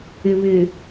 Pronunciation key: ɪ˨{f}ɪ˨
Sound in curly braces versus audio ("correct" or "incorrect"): incorrect